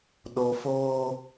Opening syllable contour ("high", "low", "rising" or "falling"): low